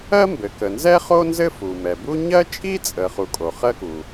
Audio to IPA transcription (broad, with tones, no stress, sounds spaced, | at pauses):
ɜ˥ m b ɘ˩ k ə˩ n z ɛ˥ χ o˥ n z ɘ˥ f u˩ m ɛ˩ b u˥ ɲ ɜ˥ t͡ʃʼ i˥ t͡sʼ ə˩ χ u˩ kʼ o˩ χ ɜ˥ k u˩